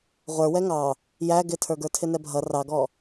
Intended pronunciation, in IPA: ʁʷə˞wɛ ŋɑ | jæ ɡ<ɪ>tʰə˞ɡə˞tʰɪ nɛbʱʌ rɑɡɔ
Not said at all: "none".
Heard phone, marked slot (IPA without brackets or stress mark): ɪ